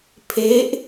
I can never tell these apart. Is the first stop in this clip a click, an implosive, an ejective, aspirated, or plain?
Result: aspirated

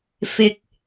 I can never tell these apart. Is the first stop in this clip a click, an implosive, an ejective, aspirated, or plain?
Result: plain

